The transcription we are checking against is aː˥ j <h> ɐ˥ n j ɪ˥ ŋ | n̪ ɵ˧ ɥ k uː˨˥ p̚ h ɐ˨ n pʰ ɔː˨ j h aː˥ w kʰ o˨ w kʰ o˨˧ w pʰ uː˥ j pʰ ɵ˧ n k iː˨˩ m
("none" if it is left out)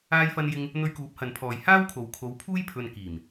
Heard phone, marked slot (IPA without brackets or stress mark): f